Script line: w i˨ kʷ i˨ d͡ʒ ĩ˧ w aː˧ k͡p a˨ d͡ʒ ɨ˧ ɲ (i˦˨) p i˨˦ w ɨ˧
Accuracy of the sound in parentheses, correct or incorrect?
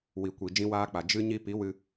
incorrect